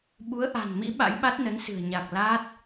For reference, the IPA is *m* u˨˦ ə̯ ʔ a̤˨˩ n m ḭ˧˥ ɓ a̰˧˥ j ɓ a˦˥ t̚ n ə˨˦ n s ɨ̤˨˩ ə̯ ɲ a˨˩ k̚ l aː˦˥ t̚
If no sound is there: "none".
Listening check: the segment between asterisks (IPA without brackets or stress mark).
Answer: ɓ